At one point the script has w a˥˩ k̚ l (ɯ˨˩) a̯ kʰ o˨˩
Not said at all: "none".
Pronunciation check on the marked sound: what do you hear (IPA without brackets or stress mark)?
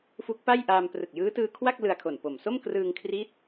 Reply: ɯ˧